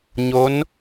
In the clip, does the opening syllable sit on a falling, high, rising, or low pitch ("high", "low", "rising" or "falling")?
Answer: rising